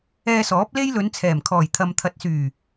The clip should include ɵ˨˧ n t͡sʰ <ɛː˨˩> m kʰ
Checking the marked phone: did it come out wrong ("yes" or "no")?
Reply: no